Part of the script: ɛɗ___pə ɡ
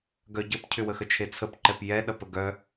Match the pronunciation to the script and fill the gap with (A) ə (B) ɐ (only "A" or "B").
B